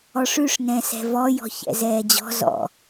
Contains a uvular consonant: no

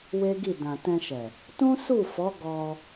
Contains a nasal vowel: yes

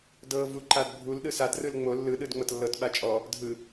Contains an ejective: yes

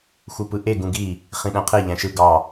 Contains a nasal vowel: yes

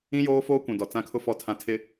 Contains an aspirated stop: yes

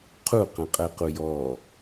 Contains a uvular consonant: yes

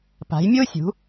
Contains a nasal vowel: no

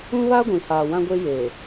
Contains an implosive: no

